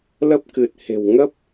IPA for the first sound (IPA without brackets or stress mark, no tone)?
l